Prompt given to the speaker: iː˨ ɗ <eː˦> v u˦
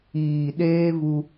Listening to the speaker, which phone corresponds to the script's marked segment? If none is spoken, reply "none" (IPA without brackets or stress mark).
eː˦